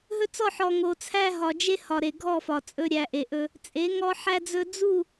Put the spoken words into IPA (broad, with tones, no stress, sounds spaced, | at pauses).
ɦ ɵ˦ t͡s ɔ˦˨ ħ ɔ˨ ŋ o˨ t͡sʰ æ˦ ɦ ɒ˨ d͡ʒ e˦ h ɒ˨ ɾ e˨ ɡʱ ɔ˦˨ f ɒ˨ t͡sʼ ɵ˦ ɾʲ æ˨ ʔ e˨ ʔ ɵ˦ | t͡sʼ e˨˦ ŋ ɔ˦ ħ æ˦ d͡z ɵ˦ d͡z u˦˨